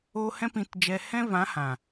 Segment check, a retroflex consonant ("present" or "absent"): absent